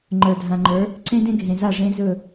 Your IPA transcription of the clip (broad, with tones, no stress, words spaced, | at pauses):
ŋ͡ǃə˞˨dʱã˨ŋ͡ǃə˞˨˦ | ǀẽ˦dẽ˦ɡʱẽ˨za˦˨ ʐẽ˦zɵ˦˨